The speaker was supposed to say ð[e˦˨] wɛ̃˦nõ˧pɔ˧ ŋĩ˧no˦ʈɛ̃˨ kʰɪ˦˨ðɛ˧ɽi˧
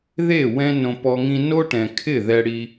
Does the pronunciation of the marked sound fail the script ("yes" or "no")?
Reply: no